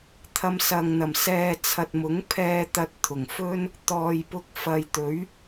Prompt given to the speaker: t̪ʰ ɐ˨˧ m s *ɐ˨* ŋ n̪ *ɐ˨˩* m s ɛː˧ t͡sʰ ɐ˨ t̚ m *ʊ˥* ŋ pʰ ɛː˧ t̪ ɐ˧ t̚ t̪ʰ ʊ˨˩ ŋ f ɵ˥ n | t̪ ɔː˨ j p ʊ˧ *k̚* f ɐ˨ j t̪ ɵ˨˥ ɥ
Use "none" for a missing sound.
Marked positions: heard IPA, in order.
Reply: ɐ˨, ɐ˨˩, ʊ˨˥, k̚

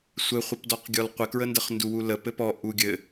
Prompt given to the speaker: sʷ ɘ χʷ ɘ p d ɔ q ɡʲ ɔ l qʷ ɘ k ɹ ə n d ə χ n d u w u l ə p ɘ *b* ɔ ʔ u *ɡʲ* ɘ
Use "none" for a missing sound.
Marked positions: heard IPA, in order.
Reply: p, ɡʲ

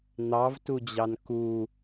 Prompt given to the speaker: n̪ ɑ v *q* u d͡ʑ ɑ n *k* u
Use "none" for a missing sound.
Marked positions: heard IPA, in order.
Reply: t, k

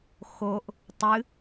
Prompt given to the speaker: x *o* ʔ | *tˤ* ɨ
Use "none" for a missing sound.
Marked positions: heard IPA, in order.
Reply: o, tˤ

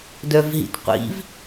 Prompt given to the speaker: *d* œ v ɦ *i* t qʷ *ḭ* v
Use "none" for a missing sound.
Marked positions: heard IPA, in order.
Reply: d, ḭ, ḭ

